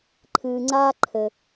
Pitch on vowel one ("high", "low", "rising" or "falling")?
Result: low